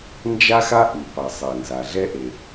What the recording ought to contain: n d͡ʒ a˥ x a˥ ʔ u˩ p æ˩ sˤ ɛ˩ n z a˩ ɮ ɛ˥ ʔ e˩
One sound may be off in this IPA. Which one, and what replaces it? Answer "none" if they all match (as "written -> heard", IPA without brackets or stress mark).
æ˩ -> a˩